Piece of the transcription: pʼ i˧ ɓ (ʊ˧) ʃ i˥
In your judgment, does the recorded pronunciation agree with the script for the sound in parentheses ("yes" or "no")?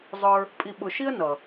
yes